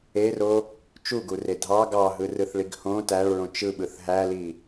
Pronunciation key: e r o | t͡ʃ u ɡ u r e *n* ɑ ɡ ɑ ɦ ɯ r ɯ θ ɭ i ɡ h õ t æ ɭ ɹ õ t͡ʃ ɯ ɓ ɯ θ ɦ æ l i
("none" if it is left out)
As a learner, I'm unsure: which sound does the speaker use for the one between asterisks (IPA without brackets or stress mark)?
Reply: dʱ